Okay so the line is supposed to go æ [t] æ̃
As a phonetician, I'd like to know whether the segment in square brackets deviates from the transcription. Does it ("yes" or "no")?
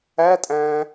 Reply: yes